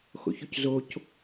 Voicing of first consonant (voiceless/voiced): voiceless